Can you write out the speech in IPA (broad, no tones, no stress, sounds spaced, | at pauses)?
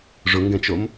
ʐ ʊ ŋ ɡ ɛ̃ t͡ʃ o m